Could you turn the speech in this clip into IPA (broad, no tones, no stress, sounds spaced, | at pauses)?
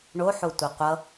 ɳ o ħ o tʷ ɛ qʷ ʌ